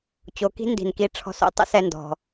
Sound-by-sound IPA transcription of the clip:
t͡ɕ o˩˧ k i̤˥ n d i̤˩ n k i˧ ʈ͡ʂʰ ɔ̤˧˥ s o̰˩ tˤ ə̰˥ s ɛ˧ n d ɔ̤˩

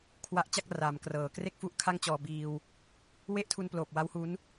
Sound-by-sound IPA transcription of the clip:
kʰ w a˦˥ ʔ t͡ɕ a˥˩ k̚ r a˩˦ m k r ɤː˩˦ k r e˥˩ k̚ f u˦˥ ʔ kʰ a˥˩ ŋ t͡ɕ ɔː˧ b iː˧ w | w e˦˥ ʔ tʰ u˧ n p l oː˨˩ p̚ w a˦˥ w h u˦˥ n

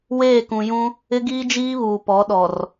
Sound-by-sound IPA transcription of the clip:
w eː˦˨ k ũ˨ j ũ˦ | ɪ˦ ɡ iː˦ d͡ʒ iː˦ β uː˨ p ɔ˨˦ ɗ ɔ˨ r

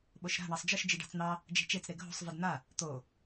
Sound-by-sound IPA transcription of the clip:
ɓ o ʃ ɾ a̤ ɳ ɑ sˤ d͡ʒ ɨ ʃ d͡ʒ ɨ ɖ ɑ̤ t͡s n̪ ɑ | d͡ʒ e̤ t͡ʃ e t͡s ɾ e ɡʱ o̤ sˤ v ɨ d n̪ a | t̪ o

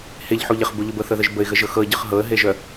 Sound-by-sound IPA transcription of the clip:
h e ʎ ħ u ʎ ə χ b u ʎ ʊ b ɤ θ ɤ ð ə ʒ b ə ɪ̯ ɣ ə ʒ ɤ x ɤ ə̯ ɟ ɤ χ ɦ ɤ ə̯ ɦ e ʒ œ

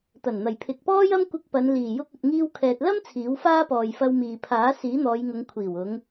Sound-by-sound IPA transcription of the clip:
t̪ ɐ˨˩ n n̪ ɐ˨˩ j pʰ ɪ˨ k̚ p ɔː˥ j ɐ˥ m kʷ ɪ˧ k̚ p ɐ˨˧ n l iː˨˩ j ʊ˧ k̚ ɵ˨ t̚ ŋ iː˧ w kʰ ɛː˨ t̚ l ɐ˥ m t͡sʰ iː˨˥ w f aː˥ p ɔː˨ j f ɐ˧ w m iː˨ pʰ aː˨˥ s iː˨˥ n̪ ɔː˨˧ j ŋ ʊ˨˧ ŋ kʷʰ iː˨˩ w ʊ˨˧ ŋ

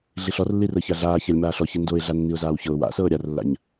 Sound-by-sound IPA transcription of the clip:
ɮ i ɬ ɔ r lː i r ɤ ç a ɮ aː ç a lʲ m aː ɬ ɔ ç i n d o ɪ̯ ɮ a nː i ʊ̯ z aː w ç ɤ ʊ̯ w a̰ s ɤː ɾʲ a r lː a̰ ɲ

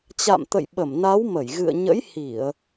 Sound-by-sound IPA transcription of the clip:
t͡ɕ a̰˧˨ m t̪ ə̰˧˨ j ɓ ə˧˩ m n a˨˦ w m ə˧˩ j ɣ ɨ̰˧˨ ə̯ ɲ ə̰˧˥ j h i˧˩˨ ə̯

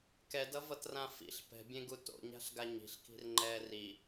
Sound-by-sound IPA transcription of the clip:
k ɛ d ʌ v ʌ t r ã f ḭ ɬ p ɛ̤ bʲ ẽ ɡ u t o̰ ɲ a̤ ɬ ɡ a ɲ i̤ ɬ k i̤ r ŋ͡ǃ ɛː r i

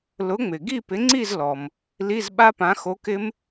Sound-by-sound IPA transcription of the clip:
l ʊ˨˥ ŋ͡m ɪ˩ ɡ i˥˨ p ɪ˨˥ ŋ͡ǀ i˥˨ z l ɔ˩ m | l i˧˥˧ z ɓ a˦˥ p ã˨˥ x o˨˥ k ɪ˦˥ m

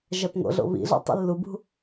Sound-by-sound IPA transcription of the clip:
ʒ æ p ŋ o̰ ɮ o̰ β ḭ ɮ o̰ tˤ ḭ lː u b ṳ

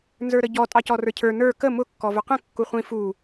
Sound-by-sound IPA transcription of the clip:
n z ə˞ ɾ ə ɟ ɔ tʼ ɑ c ɔ r ə˞ cʰ ə˞ n ə˞ k ə m ʊ kː ɔ v ʊ q ə̃ kː u χʷ ĩ f u

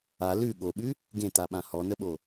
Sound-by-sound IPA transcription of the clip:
a l ʉ ɠ o ɓ ʉ | ɡ ẽ t a ɓ ã h ɔ n ə ɓ o

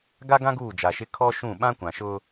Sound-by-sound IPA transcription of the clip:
ɡ a˦ ɡ ã˦ ɡ uː˦˨ d͡ʒ a˨ ʃ ɪ˦ kʰ ɔ˦ ʃ ũ˦˨ ɓ ã˦ kʷ ã˨ ʃ ʊ˦

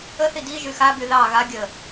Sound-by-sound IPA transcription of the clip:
ə θ i d i ʒ y x a b y ð ɑ ɣ a ɡʲ ə

